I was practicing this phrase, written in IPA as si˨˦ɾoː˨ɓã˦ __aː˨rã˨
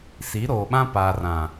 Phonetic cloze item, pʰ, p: p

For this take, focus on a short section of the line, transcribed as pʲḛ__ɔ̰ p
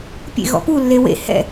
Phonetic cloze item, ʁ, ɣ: ɣ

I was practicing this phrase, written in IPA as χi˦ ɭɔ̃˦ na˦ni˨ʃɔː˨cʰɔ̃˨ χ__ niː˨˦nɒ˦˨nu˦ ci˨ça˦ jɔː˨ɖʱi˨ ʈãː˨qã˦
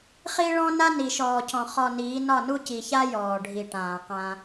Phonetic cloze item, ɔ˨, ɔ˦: ɔ˨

